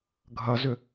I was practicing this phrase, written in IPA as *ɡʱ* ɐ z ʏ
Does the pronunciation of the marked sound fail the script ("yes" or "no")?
no